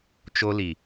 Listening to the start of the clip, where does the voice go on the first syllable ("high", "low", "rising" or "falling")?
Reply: high